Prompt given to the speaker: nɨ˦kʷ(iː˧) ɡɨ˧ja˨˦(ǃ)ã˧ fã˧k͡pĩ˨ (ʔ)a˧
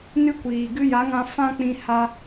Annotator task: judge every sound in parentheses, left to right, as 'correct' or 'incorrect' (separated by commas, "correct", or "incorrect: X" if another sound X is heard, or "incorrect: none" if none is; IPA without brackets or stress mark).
incorrect: iː˨, incorrect: ŋ, incorrect: h